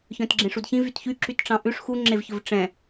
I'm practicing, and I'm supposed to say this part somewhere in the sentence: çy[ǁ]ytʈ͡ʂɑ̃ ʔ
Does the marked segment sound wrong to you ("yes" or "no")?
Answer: no